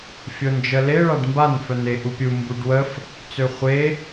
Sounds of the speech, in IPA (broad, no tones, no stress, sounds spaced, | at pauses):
fʲ o n d͡ʒ ə l e ɭ a ɖ m b a n f œ n e ʔ u pʲ u m b u ɖ w ə f | t͡s ø χʷ e